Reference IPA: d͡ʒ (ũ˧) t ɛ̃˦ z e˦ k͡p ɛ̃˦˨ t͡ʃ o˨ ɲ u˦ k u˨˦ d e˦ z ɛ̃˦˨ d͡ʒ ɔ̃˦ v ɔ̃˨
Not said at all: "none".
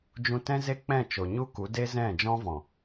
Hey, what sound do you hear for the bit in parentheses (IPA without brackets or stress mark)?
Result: ũ˧